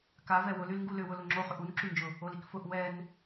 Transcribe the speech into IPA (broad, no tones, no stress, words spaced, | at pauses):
kavɛ wʊlylŋɡu lʏwʊ lʊŋ͡ǁo χʏʔunǁynd͡ʒʊ | olikfʊʔ wɛn